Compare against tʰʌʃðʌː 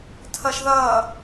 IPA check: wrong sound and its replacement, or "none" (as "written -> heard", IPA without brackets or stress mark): none